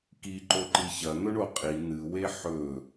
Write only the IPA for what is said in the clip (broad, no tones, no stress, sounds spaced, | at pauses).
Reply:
k i ǃ o ǃ i ç ɐ n̪ ɵ ɳ o qʼ i n̪ ɨ w e ħ ɵ